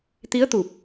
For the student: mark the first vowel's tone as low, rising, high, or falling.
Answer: rising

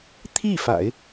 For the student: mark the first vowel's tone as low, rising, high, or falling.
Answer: falling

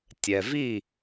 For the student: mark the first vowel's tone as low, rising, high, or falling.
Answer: low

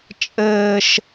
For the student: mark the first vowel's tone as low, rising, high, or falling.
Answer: high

